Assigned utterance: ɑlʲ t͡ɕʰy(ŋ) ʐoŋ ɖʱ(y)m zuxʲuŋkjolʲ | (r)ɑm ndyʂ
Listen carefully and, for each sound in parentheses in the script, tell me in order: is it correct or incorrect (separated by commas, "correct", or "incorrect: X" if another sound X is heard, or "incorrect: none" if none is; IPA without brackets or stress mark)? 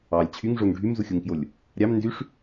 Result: correct, correct, incorrect: ɾʲ